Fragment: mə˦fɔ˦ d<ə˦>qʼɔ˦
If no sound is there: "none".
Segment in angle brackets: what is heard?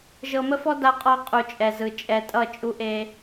a˦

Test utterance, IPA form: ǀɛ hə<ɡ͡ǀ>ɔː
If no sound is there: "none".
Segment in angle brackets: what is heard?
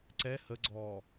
ɡ͡ǀ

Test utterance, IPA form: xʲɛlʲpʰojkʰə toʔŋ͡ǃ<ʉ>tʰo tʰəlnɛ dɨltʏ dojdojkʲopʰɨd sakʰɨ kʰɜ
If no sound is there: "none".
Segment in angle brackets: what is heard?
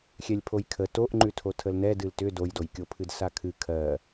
ʉ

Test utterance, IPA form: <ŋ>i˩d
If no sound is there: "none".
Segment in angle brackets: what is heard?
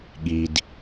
ɠ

